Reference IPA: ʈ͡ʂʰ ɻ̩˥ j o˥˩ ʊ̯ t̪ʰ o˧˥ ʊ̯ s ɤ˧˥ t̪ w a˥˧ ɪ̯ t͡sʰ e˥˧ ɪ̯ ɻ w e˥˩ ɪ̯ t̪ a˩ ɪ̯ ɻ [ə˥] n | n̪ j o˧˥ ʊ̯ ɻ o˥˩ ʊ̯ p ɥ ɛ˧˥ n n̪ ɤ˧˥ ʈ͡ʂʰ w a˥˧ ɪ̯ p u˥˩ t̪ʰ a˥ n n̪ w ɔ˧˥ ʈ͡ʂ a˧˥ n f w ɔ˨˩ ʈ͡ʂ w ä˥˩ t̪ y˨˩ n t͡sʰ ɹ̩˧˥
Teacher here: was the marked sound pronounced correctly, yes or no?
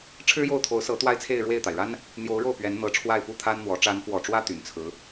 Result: no